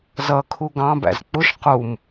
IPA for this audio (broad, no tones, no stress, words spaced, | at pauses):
zʌkʰu ɡɑ̃bæ̰z k͡pʊʃ qum